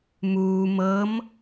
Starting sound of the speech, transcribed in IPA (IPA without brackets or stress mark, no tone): m